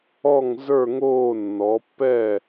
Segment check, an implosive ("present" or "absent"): absent